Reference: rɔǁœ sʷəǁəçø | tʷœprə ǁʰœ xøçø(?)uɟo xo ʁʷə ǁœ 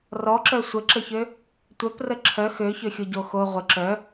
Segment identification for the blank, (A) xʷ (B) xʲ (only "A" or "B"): B